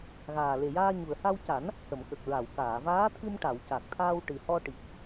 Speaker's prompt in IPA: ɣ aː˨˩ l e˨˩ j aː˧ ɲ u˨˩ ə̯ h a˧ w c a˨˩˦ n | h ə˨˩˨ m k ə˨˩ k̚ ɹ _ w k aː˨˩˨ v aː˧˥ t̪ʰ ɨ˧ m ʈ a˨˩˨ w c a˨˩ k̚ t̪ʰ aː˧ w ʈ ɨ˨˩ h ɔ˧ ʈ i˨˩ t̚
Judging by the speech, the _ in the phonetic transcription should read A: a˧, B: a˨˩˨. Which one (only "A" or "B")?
B